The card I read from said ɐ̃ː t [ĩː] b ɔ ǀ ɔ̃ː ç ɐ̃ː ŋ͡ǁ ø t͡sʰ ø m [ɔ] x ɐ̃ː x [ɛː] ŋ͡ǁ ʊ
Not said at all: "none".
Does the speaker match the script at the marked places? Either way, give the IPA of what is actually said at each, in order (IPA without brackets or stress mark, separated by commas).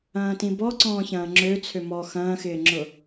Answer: ĩ, ɔ, ɪː